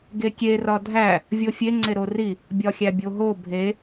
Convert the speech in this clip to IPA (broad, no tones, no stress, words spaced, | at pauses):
ɡekʲe rɒdʱæ | vʲofʲe ŋ͡ǀeɾori | bʲɒxʲæbʲoɦo bʱe